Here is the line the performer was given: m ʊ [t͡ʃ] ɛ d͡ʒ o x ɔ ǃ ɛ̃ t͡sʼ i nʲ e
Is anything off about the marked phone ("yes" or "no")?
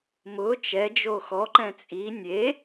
no